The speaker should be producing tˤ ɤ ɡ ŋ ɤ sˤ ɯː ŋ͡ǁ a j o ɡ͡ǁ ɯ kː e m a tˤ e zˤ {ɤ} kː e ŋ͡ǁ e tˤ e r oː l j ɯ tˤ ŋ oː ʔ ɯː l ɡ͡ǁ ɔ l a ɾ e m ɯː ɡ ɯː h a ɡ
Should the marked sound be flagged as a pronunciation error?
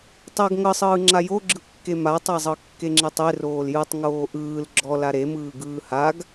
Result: no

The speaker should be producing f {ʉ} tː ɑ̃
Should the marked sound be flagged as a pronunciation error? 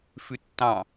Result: no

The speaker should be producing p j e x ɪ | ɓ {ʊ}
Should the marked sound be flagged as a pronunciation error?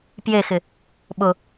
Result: no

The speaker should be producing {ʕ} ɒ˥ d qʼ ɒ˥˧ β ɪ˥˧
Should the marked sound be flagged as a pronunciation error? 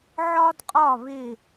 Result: no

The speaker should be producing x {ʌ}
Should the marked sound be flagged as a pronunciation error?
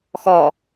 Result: yes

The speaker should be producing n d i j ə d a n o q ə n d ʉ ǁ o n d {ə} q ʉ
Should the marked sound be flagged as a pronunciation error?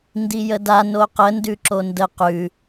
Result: no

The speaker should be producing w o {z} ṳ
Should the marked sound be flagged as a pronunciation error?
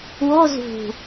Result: no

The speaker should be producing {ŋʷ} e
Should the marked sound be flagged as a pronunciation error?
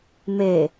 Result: yes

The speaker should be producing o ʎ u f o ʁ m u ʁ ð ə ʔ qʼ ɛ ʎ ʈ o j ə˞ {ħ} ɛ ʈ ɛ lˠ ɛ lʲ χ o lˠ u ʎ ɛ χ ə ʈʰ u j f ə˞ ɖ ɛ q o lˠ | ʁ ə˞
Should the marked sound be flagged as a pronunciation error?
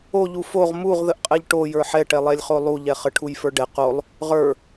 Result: no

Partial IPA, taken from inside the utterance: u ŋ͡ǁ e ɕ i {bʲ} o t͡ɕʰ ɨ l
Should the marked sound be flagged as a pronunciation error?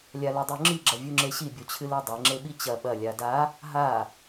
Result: no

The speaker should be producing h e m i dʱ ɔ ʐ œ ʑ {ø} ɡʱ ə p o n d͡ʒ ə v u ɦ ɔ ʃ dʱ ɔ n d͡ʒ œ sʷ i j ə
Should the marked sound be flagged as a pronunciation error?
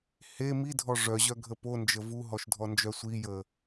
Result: yes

